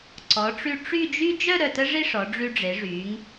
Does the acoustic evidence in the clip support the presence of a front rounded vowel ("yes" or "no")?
yes